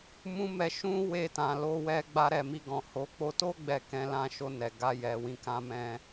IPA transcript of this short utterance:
m ũ˦ m ɛ˧ ʃ ũ˦ w e˧ t ã˨ l o˧ w ɛ˧ ɡ͡b a˧ ɾ ɛ˨ m i˧ ɡ ɔ̃˨ h o˨˦ k͡p o˧ t o˦ ɡ͡b ɛ˧ k ɛ̃˧ l ã˧ ʃ o˧ n ɛ˨ ɡ a˧ j ɛ˨ w ĩ˧ k ã˧ m ɛ̃˧

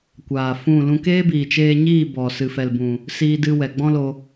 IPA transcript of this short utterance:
kʷ aː˨ f ũ˦˨ l ũ˦ k eː˦ b iː˨ t͡ʃ eː˧ ɲ iː˦˨ b ɔ˨ s ɨ˨ f ɛ˨ l b ũ˨ | s iː˦ d ɨ˧ w ɛ˨ ɡ͡b ɔ̃˦ l o˧

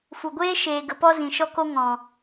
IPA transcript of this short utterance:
f u˨ ɡʷ eː˦ ʃ eː˨ ɡ ə˨ p ɔ˧ z ĩ˨ ʃ ɔ˧ k o˧ ŋ ɔ̃˨

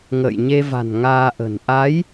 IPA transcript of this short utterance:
ŋ ə̰ː˧˨ j ɲ e˧ v a̤˨˩ n ŋ aː˧ ʔ ə̤˨˩ n ʔ a˨˦ j

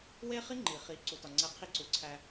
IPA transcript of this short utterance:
w e˦ χ i˦ ŋ͡ǃ i˨ χ i˨ ǀ u˨ t ɒ˨ ŋ͡ǀ æ˦ qʰ i˦ ǀ u˨ ǀʰ æ˦

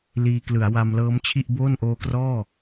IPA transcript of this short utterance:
l iː˧ k l ɯ˩˦ a̯ w a˧ m l ɤː˦˥ m t͡ɕʰ i˥˩ ʔ b oː˥˩ n ʔ oː˦˥ k r ɔː˥˩

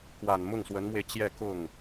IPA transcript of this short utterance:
k w a˨˩ n m ʊ˥˩ ŋ s w ə˧˥ n m w e˧ ɪ̯ t͡ɕ j ɛ˥˧ k ʊ˥˩ ŋ

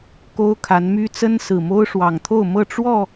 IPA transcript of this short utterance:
k o˦ ʊ̯ kʰ a˨˦ n m y˦ t͡s ə˦ n s ɹ̩˨˩ m o˦ ʊ̯ ʂ w ɑ˨˩ ŋ t̪ʰ o˥˨ ʊ̯ m ɤ˥˨ ʈ͡ʂ w ɔ˥˨

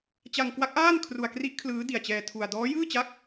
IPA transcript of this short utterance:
t͡ɕ a˧ ŋ k w a˦˥ k̚ ʔ aː˥˩ n kʰ r u˧ a̯ k r i˦˥ ʔ kʰ l ɯː˦˥ d i˨˩ a̯ t͡ɕ ɛː˧ tʰ u˧ a̯ d ɔː˦˥ j ɯː˥˩ t͡ɕ a˦˥ k̚

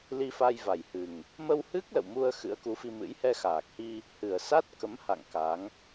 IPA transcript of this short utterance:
l i˧ f a˧ j v a˨˩ j h ɨ˨˩ ŋ | m ə˧ w h ɨ˦˥ k̚ l ə̰˧˨ w m u˧ ə̯ x ɨ̰˧˥ ə̯ k u˨˦ f i˧ m ɨ̰˧˥ j h ɛ˧ x aː˨˩ k̚ h i˧ | h ɨ˨˩ ə̯ s a˦˥ t̚ k ə˨˦ m h a̰˧˨ ŋ k a˨˦ ŋ

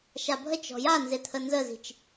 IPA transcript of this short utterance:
ʃ a bʱ ə t͡ʃ ɔ̤ j a n z e t̪ʰ ə n z ə z i̤ t͡ʃ

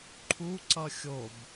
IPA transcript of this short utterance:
ǃʰ u ǀ ʌ xʲ o b

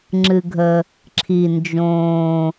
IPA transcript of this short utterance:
ŋ͡ǁ ɨ˩ ɡʱ ə˩ | ǁʰ i˩ n d͡ʒ õː˩

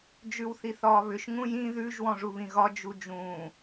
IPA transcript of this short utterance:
d͡ʒ ʉ w θ i θ ɒː β ʏ ʃ ŋ ũ j ĩ ð ʉ ʒ w ɔ̃ ʐ u β ĩ ɣ ɒ d͡ʒ u d͡ʒ ũː

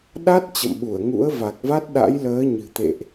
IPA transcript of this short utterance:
ɗ a˦˥ t̚ t͡ɕ ə̰˧˨ m ɓ u˧˩ ə̯ ŋ ṵ˧˥ ə̯ v a˨˩ k̚ v a˦˥ t̚ ɗ a̰˧˥ j l əː˨˦ ɲ ɨ̤˨˩ t̪ ḛ˧˨ ʔ

